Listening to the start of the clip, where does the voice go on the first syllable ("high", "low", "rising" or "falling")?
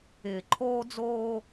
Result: low